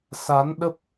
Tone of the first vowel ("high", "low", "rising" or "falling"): rising